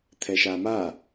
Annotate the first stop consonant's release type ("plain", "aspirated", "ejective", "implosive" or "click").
aspirated